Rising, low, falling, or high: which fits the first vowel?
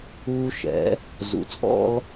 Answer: high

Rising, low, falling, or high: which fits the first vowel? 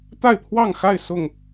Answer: falling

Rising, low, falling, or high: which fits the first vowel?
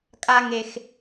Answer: high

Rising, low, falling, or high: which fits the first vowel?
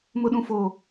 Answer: high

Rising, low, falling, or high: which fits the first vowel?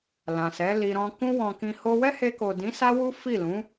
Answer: low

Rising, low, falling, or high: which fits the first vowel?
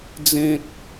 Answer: high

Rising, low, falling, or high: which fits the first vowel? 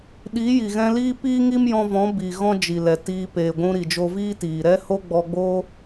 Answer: rising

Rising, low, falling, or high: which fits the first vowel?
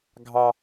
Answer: low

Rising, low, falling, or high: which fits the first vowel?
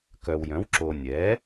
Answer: low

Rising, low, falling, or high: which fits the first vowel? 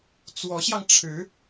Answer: rising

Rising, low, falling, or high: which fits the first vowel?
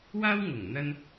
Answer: high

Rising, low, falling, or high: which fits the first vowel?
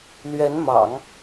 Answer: rising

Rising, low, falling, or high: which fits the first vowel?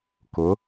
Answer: rising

